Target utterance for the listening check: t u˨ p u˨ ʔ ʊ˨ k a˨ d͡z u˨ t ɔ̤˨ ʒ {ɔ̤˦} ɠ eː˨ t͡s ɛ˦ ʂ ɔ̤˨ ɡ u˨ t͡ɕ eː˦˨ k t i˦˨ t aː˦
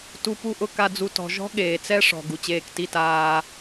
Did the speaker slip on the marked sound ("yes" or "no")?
no